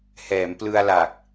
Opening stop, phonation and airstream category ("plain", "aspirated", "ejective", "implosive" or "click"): plain